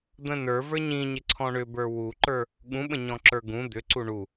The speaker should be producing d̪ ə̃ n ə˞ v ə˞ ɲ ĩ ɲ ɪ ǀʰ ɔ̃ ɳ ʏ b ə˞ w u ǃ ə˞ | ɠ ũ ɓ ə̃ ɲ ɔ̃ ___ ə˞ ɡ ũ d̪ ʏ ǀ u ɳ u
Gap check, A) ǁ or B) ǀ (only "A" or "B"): A